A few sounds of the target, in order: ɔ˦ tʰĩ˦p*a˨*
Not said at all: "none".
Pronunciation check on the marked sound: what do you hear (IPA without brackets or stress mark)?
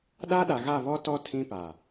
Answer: a˨